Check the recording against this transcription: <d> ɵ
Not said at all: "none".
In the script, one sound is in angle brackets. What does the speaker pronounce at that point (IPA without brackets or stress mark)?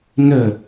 n